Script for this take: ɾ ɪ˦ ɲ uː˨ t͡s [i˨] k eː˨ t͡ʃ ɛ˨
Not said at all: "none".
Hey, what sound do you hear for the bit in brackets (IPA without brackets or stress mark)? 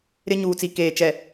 i˨